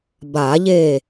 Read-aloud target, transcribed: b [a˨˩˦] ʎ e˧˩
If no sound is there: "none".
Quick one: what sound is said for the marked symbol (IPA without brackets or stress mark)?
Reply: a˨˩˦